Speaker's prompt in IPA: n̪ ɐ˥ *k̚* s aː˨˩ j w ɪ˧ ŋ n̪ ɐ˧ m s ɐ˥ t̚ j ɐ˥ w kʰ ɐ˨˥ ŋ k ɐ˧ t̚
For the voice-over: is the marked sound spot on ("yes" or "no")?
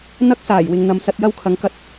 yes